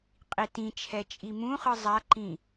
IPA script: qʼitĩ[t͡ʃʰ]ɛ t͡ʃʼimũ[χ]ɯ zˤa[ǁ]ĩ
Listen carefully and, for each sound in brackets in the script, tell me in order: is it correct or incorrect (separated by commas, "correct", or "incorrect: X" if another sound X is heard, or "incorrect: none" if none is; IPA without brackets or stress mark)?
correct, correct, incorrect: ǃ